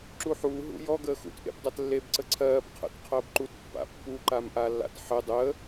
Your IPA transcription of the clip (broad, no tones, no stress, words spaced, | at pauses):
ǁuħuː ɦṵjɔ ɡəːxṵt ʔḛbdˤatlːeb ǀəǀʰɜːb qʰə̰t qʰəːbǃut pːa̰pːu ǃamʔalːa̰tħə dˤəː